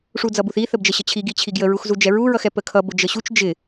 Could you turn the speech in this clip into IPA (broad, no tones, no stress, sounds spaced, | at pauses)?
ʂ u d͡z ʌ b u θ i θ ə b d͡ʒ ə ɕ ə t͡ɕʰ i ɡ i t͡ɕʰ i ɡ j ə ɹ u x z u d͡ʒ ɛ ɹ u ɹ ʌ x ɛ p ə kʰ ʌ b ʊ d͡ʒ ə ɕ u t͡ʃ d͡ʒ ɪ